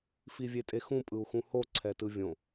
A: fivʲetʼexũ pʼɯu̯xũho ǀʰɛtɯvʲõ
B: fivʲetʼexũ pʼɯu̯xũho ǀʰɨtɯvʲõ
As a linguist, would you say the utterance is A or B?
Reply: A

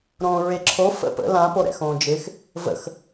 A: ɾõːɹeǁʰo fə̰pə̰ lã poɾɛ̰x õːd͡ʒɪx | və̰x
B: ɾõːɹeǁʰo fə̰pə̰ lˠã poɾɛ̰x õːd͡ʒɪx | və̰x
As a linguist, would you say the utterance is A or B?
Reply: A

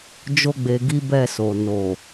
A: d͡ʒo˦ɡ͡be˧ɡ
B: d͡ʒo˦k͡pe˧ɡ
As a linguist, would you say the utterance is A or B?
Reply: A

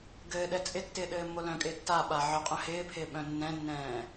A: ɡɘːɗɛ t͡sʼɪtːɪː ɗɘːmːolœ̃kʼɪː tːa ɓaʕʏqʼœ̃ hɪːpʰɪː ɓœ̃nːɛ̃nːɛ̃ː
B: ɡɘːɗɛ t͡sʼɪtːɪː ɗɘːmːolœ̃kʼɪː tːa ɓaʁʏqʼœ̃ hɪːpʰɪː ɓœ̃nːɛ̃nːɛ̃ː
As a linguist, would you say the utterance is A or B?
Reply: A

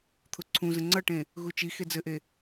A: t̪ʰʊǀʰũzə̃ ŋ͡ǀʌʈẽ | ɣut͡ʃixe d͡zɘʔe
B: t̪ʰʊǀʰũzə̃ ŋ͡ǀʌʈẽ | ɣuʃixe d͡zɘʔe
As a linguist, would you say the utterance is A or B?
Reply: A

